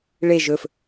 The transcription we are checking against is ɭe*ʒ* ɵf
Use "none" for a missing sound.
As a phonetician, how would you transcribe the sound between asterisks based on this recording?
ʒ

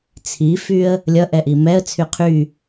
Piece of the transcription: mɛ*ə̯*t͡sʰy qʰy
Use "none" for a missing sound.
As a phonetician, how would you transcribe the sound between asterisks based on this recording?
ə̯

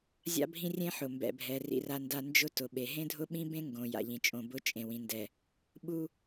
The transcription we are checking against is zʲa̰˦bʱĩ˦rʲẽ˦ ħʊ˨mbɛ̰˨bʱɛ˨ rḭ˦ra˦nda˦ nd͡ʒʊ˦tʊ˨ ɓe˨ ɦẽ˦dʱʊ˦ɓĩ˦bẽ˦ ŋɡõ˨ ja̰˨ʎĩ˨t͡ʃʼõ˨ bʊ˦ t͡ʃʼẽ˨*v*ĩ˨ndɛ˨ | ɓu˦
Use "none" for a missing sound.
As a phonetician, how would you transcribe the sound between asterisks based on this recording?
w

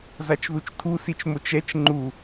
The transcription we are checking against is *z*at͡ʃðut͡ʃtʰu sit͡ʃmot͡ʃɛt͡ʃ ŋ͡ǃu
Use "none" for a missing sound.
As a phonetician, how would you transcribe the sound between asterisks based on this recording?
z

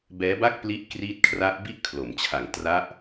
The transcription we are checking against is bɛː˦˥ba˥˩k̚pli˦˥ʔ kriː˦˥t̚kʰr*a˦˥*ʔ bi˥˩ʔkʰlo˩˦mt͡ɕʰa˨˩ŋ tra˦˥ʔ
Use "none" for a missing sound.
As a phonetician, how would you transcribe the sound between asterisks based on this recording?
a˦˥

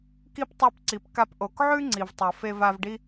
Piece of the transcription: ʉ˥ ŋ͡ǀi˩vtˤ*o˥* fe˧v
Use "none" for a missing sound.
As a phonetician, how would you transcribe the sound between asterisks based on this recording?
o˩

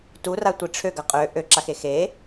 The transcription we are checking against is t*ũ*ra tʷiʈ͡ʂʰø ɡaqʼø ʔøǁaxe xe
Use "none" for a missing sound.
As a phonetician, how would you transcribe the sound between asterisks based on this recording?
u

